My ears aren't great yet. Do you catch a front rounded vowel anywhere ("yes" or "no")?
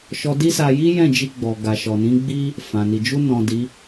no